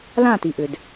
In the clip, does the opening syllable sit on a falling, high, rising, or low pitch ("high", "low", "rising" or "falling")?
falling